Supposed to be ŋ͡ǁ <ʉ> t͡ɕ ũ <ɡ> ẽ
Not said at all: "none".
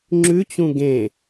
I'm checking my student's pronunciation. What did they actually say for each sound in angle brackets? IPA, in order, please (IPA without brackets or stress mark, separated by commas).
ʉ, ɡ